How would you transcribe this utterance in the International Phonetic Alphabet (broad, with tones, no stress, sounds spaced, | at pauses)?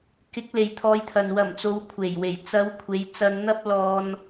k ɪ˨˥ k̚ l e˨ j t̪ʰ ɔː˧ j t̪ʰ ɐ˨ n w ɐ˨˩ m t͡s o˨˧ w kʷʰ e˨˩ j w e˨˩ j t͡s ɐ˨˧ w kʷʰ e˨˧ j t͡s ɐ˧ n n̪ ɐ˥ p̚ l ɔː˧ n